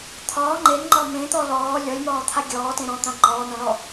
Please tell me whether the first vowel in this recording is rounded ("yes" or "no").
yes